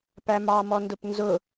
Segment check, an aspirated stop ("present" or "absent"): absent